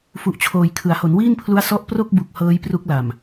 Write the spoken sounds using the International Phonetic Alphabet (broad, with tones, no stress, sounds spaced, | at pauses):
f u˨˩ ʔ t͡ɕʰ oː˨˩ j kʰ ɯ˩˦ a̯ h o˩˦ n w iː˥˩ n pʰ l u˦˥ a̯ s ɔ˦˥ ʔ p r o˥˩ k̚ b u˨˩ k̚ h ɤː˦˥ j p r u˦˥ k̚ l a˨˩ m